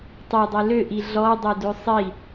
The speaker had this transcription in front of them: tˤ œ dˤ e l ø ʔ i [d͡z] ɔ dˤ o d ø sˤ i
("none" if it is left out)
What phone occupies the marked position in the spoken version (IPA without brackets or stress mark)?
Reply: ɮ